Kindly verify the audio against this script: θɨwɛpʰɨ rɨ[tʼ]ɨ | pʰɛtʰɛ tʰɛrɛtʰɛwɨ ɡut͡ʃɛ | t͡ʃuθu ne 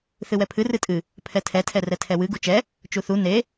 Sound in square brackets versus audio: correct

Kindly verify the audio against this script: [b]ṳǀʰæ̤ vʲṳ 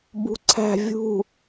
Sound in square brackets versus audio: correct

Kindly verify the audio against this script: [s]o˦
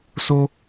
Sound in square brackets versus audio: correct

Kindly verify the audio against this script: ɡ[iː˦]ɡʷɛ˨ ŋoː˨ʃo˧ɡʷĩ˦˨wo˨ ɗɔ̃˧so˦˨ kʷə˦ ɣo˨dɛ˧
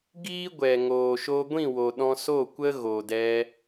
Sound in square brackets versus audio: correct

